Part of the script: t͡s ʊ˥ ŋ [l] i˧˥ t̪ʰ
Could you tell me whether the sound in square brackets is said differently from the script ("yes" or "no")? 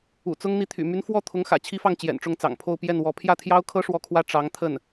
yes